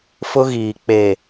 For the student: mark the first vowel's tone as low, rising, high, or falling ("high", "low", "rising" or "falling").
high